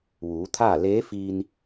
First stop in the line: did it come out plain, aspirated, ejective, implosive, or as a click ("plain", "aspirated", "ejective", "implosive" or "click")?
aspirated